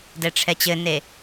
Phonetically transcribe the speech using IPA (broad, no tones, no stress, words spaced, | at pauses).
dɛʈ͡ʂʰɛt͡ɕɘne